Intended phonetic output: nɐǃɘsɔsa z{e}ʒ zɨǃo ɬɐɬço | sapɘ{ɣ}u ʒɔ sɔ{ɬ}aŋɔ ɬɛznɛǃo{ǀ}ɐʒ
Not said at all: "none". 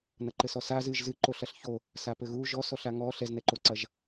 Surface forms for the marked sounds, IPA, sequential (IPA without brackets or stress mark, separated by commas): ɨ, ɣ, ɬ, ǀ